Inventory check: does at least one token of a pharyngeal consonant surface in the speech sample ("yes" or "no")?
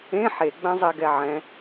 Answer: yes